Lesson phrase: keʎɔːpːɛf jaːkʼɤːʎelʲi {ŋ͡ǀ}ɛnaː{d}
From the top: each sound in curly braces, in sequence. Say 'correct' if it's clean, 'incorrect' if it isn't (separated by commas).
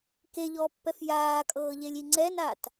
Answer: correct, incorrect